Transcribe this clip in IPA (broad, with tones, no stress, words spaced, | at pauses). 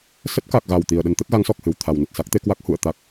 sə˦˥t̚ka˨˩k̚ ɣa˧˩w t̪i˨˩ə̯ɗə˧n t̪ə˦˥t̚ɣa˨˦ŋsɔ˨˩k̚ hɨ˨˩wt̪ʰa˨˩wnə˨˩t̚ sa˦˥k̚t̪e˨˦kwa˦˥k̚ hṵ˧˨ə̯t̪a˦˥k̚